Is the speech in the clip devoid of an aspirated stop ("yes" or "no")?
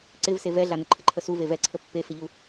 no